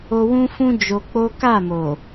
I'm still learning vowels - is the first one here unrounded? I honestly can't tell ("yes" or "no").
no